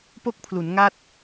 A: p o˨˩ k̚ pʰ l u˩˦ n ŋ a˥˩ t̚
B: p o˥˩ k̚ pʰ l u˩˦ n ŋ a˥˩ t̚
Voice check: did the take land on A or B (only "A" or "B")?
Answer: B